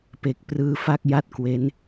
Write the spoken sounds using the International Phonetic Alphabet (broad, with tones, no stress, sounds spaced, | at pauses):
p e˨˩ k̚ p r ɯː˧ f a˥˩ k̚ j a˥˩ t̚ k w e˦˥ n